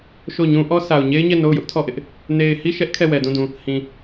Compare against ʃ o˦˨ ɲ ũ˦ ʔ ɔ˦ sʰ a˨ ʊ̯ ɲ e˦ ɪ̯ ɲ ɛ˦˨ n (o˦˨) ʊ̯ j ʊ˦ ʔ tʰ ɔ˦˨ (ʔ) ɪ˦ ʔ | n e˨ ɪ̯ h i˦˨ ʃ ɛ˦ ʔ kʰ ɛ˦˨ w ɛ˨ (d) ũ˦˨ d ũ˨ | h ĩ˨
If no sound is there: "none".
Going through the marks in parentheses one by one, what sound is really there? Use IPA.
o˦˨, ʔ, d

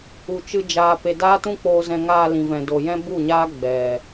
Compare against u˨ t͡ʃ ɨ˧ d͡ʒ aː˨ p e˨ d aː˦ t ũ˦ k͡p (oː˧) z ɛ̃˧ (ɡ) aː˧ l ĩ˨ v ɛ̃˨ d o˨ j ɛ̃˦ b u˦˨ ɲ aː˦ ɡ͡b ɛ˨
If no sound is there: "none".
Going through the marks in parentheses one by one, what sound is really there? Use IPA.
oː˧, ŋ

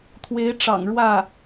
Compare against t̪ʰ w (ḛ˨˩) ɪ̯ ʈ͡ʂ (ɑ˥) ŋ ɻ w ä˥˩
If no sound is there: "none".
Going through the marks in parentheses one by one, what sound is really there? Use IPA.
e˧˥, ɑ̰˨˩

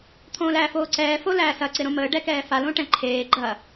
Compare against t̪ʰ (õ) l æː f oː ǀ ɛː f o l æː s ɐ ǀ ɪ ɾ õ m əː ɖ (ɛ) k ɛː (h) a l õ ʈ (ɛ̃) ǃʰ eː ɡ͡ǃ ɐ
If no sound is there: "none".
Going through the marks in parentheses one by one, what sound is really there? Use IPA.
õː, ɛ, f, ɛ̃

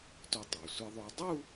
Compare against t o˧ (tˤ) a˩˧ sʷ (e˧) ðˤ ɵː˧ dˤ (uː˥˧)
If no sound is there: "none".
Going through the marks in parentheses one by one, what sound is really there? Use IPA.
tˤ, e˧, u˥˧

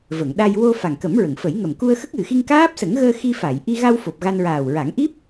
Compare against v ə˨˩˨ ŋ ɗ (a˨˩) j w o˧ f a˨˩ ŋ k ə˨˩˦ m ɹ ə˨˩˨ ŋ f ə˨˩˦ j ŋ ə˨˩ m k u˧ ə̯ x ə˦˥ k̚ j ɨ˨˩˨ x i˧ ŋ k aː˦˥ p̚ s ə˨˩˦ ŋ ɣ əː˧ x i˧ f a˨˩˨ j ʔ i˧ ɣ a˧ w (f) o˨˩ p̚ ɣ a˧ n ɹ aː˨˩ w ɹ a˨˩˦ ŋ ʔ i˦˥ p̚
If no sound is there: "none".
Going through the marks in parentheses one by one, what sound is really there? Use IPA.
a˧, f

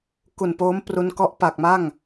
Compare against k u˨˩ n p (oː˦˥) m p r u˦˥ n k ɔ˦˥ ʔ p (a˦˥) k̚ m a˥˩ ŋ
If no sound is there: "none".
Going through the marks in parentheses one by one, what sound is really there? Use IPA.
oː˦˥, a˨˩

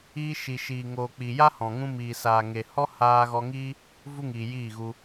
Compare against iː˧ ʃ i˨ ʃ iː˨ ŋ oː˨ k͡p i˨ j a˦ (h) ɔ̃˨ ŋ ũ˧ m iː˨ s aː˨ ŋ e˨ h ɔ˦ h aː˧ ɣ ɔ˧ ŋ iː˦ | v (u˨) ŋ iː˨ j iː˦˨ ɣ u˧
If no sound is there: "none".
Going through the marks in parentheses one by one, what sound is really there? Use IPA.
h, u˦

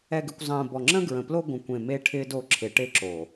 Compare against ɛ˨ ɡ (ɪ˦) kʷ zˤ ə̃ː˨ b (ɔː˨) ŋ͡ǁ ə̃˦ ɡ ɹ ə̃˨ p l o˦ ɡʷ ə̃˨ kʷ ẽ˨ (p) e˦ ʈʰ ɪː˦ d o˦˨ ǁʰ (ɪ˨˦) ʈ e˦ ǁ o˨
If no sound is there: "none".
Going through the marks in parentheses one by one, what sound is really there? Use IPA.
ɪ˨, ɔ˨, m, ɪ˨˦

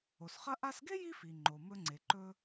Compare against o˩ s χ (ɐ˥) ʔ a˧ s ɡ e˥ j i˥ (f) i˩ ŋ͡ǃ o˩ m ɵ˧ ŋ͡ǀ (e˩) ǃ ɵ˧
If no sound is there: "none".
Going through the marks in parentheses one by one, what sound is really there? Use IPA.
ɐ˥, f, e˩

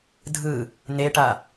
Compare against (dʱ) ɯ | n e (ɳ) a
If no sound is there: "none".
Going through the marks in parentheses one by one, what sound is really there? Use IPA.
dʱ, ʈ

